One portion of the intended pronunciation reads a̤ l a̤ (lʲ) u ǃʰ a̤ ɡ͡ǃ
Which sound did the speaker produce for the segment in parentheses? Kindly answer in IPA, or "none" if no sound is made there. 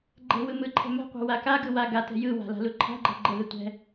l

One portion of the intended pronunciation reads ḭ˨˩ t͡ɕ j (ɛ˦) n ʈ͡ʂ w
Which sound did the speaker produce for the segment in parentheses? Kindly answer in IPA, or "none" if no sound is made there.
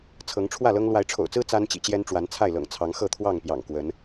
ɛ˦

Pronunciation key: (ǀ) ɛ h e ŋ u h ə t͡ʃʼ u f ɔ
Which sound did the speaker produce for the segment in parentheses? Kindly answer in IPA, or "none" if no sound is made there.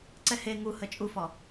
ǀ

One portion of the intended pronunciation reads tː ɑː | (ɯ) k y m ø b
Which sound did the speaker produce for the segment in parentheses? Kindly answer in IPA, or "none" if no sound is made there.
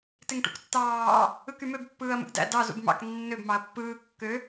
ɯ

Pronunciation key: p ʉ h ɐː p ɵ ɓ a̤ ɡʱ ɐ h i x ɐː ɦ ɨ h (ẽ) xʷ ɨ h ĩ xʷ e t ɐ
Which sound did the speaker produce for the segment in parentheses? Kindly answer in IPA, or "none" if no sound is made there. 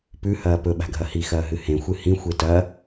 ẽ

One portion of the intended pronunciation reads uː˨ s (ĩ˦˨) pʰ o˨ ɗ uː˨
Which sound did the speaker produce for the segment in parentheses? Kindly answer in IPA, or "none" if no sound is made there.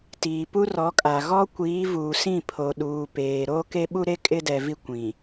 ĩ˦˨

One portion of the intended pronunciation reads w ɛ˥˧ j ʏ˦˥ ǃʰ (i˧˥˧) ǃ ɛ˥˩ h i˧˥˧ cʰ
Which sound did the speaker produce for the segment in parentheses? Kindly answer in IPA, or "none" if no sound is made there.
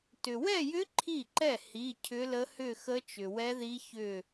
i˥˩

